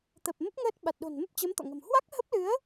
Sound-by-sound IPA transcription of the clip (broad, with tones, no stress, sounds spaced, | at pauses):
t̪ ə˨˩ p̚ m ə˦˥ p̚ ŋ əː˦˥ t̚ ɓ a˨˩ t̚ ɗ o̤˨˩ n m ə˦˥ p̚ t͡ɕ ə˨˦ m t̪ ɔ̰˧˨ ŋ ə̤˨˩ m h w a˦˥ k̚ h ə˦˥ p̚ l ɨ˨˦ ə̯